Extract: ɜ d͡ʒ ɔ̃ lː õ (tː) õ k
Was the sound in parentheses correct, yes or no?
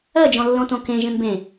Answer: no